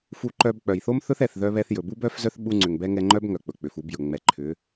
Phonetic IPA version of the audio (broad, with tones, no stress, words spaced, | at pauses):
fu˧ǃœ˧b k͡pœ˨jθo˦mθɵ˦θ ɛ˨θðœ˧βɛ˧θjɵ˨ bu˦bœ˦fzœ˦θ ɓu˧ŋ͡ǀʏ˨ŋbɛ˧ ŋɛ˧ŋ͡ǃœ˦bŋœ˨ k͡pɵ˨k͡pʏ˨fu˨˦bjɵ˨ ŋ͡mɛ˨ǃʰʏ˨˦